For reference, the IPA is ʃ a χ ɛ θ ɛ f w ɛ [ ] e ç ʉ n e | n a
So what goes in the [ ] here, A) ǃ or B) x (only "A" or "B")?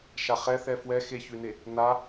B